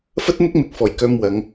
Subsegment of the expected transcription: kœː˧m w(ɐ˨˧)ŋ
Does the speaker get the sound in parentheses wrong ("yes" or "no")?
no